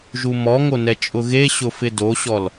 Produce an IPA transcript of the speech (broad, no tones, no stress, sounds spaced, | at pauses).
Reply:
ʒ u m ɔ ŋ o n ɛ t͡ʃʼ ʊ ɣ e ɕ ʊ f ɪ d o ɕ ɔ l